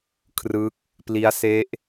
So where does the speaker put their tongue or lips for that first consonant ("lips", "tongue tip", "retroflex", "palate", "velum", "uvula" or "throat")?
velum